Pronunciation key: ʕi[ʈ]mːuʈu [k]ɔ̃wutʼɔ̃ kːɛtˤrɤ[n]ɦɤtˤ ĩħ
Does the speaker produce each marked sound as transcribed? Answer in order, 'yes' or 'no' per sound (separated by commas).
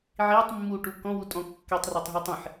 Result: no, yes, no